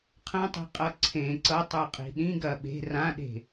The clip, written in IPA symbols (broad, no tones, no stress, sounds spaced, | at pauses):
qʰ ɐ̃ tˤ i̤ qʼ ʌ ǀʰ ẽ ǀ ʌ tˤ ə˞ qʼ i̤ ɗ ĩ ɡ ɐ ɓ e̤ r ã ɗ e̤